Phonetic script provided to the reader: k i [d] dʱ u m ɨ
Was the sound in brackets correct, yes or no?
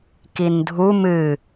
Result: no